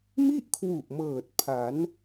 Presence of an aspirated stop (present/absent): present